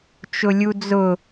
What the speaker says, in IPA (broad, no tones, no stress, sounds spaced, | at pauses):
t͡ʃ ʊ lʲ u d͡z ʊ